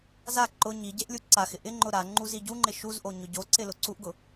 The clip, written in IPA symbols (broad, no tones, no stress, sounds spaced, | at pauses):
z a ǃ ʊ ɲ i ɟ e ʔ lʲ u ǀ a x ɪ ʔ ɪ ŋ͡ǃ ʊ ɾ a ŋ͡ǃ u z i ɟ u ŋ͡ǃ ɪ ʃ u z ʔ o ɲ ʊ ɟ o ǀ ɪ l ʊ ǀ u ʔ ɡ ʊ